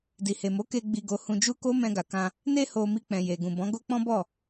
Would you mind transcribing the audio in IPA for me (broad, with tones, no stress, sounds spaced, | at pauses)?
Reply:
d i˨ h e˨ m o˨˦ k e˧ ɡ͡b i˧ ɡ o˧ h ũ˧ d͡ʒ u˦ k o˦ m ɛ̃˧ ɡ a˨ k ã˧ | n e˧ h o˨ m i˧ k͡p ɛ̃˨ j e˨ ɡ ũ˨ b ɔ̃˨˦ ɡ o˦ k͡p ɔ̃˦ b ɔ˦˨